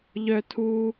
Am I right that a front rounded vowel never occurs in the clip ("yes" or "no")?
no